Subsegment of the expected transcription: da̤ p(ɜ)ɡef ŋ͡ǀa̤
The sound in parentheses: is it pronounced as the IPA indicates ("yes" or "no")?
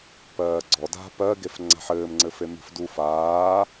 yes